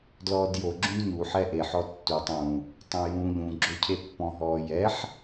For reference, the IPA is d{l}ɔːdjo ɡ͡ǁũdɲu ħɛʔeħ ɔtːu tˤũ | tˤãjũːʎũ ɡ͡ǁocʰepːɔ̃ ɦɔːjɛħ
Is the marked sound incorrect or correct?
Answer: correct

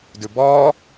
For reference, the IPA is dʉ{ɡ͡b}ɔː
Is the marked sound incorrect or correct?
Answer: incorrect: b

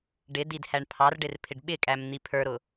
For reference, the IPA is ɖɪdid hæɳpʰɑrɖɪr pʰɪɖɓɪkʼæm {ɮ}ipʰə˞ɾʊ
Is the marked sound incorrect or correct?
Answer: incorrect: n̪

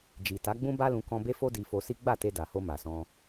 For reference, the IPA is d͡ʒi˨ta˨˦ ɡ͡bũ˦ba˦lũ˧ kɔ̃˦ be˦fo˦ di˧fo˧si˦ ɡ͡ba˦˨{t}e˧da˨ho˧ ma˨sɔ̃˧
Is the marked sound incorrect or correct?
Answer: correct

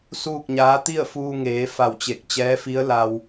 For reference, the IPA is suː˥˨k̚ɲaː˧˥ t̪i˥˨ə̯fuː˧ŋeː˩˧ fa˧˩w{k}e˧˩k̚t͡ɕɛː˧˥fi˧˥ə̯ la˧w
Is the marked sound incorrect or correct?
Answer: incorrect: t͡ɕ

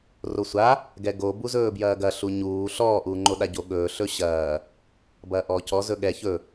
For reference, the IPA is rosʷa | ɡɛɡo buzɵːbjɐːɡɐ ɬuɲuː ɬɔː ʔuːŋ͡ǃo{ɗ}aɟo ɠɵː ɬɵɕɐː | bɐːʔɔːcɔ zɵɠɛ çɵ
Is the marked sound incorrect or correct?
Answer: correct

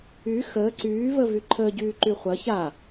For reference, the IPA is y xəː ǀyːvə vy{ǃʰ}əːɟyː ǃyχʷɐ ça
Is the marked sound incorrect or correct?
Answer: correct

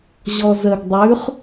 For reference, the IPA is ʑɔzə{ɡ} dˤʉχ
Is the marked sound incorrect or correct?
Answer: correct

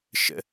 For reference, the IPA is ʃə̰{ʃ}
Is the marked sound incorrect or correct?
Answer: incorrect: none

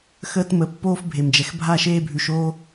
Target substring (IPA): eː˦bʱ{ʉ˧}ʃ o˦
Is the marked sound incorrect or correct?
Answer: correct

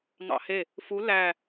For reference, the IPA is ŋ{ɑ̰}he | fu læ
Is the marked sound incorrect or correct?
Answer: correct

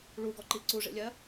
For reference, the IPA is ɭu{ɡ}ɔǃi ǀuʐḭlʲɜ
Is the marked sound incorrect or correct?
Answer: correct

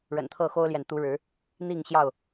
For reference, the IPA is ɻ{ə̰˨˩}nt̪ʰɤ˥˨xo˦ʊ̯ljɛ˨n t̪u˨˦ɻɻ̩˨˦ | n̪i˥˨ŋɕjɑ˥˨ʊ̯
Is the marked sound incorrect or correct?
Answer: correct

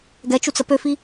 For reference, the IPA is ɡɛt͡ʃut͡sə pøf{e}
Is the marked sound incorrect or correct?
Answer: incorrect: i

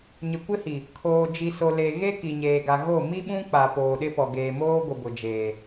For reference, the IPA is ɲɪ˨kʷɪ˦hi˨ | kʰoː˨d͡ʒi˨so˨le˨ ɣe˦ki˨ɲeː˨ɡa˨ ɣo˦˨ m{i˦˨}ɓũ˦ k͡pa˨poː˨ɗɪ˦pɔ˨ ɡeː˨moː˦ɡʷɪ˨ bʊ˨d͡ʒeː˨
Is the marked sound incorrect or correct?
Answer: incorrect: i˦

